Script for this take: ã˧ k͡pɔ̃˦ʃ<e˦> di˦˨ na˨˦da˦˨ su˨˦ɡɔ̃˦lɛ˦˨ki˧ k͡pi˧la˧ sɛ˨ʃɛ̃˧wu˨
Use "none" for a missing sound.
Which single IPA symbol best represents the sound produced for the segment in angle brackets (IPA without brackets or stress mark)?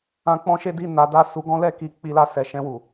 e˦